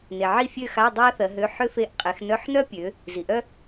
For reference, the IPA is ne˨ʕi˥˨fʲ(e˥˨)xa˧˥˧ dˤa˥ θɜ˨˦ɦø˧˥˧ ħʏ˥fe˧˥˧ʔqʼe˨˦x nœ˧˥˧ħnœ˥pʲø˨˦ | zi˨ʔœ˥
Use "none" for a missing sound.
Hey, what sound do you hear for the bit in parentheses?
ø˥˨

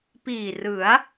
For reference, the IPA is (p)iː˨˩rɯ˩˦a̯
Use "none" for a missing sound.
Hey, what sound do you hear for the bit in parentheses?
p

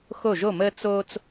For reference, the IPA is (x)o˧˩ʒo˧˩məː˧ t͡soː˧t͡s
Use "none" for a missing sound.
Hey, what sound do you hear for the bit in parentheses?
x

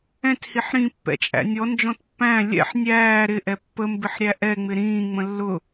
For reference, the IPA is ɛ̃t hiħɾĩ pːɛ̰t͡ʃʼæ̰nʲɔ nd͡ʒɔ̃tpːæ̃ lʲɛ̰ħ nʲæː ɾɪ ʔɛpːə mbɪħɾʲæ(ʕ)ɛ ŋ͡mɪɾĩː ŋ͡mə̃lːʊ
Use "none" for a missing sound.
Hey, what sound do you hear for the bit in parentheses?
ʔ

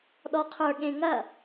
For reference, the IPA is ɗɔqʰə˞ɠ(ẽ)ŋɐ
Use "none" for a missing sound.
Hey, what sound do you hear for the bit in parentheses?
ẽ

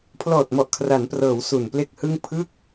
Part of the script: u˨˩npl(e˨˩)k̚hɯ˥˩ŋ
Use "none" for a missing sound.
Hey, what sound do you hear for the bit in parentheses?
e˥˩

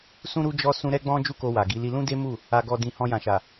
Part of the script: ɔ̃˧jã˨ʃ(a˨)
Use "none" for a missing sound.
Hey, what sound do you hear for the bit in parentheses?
a˨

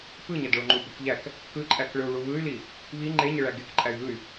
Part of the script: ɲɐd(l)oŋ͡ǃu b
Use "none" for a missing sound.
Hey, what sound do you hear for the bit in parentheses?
ɭ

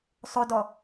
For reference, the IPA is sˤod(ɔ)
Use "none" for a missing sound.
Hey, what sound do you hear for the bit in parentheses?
ɔ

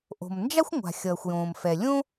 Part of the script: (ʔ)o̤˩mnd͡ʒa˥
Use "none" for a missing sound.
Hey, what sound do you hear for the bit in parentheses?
ʔ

